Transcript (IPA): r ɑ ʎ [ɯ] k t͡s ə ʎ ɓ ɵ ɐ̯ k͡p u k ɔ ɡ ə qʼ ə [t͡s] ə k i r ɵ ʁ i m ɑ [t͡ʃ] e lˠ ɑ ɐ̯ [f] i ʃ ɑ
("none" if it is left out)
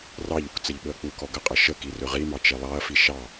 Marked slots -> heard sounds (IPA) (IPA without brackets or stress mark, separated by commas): u, ʃ, t͡ʃ, f